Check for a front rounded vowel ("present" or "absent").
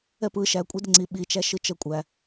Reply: absent